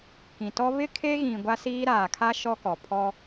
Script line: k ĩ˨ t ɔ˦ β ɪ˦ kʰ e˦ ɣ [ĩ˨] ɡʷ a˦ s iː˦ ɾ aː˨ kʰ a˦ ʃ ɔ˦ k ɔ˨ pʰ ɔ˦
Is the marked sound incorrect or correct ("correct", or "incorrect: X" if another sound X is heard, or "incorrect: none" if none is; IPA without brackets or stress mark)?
correct